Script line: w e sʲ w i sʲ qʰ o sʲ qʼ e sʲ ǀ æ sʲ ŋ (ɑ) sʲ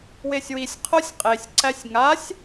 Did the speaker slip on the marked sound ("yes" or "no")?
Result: yes